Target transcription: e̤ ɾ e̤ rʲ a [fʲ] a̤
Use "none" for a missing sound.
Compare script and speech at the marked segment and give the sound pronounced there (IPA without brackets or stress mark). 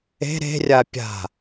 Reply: pʲ